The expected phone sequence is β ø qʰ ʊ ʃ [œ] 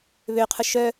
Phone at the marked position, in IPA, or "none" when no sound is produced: œ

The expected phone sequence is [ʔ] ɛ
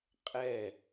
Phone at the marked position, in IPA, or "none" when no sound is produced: qʼ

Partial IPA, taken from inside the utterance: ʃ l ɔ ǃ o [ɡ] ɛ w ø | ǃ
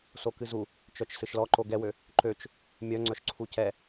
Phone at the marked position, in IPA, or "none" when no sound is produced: ɡ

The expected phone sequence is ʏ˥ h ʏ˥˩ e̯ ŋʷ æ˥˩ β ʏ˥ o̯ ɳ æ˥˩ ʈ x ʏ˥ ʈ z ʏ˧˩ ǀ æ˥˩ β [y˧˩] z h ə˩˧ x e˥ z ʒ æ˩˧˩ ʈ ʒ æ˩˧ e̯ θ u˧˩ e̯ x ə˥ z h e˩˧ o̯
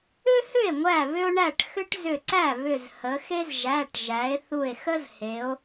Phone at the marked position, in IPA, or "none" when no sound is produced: ʏ˧˩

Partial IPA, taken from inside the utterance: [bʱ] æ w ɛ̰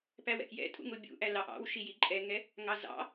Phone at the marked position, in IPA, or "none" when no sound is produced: p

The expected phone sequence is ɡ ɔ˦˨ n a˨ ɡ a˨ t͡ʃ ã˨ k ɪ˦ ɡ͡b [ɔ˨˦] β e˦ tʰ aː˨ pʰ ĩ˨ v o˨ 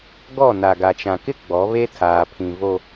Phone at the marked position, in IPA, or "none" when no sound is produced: ɔ˨˦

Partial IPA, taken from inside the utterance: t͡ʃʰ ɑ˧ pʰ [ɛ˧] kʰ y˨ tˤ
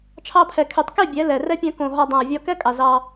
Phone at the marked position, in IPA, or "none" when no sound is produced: ɛ˨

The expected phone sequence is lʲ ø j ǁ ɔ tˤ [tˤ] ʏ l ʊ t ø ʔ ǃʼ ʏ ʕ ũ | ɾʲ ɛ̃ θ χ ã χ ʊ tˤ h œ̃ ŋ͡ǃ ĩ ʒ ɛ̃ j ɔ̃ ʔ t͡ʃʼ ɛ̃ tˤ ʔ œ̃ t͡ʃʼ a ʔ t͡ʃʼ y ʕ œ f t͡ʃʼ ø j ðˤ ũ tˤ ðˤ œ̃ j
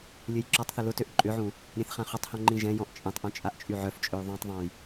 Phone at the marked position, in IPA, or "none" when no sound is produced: θ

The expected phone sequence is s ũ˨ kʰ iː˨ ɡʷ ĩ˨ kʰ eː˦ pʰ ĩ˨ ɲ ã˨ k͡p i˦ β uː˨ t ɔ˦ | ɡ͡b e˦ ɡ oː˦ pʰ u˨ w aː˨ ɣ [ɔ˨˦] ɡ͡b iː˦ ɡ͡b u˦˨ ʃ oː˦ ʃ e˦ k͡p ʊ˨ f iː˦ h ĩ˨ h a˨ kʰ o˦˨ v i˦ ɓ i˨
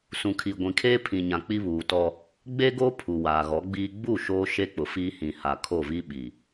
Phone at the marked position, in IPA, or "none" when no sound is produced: ɔ˨˦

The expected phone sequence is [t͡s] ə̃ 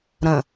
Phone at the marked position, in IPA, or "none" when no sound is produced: ɾ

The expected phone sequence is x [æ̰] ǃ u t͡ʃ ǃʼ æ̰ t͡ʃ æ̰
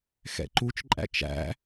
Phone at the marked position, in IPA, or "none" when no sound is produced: ɛ̰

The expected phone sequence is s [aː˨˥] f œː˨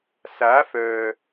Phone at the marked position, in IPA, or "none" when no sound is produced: aː˨˥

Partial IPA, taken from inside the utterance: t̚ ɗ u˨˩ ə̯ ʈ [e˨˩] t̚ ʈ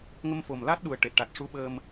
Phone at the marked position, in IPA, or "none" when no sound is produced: e˨˩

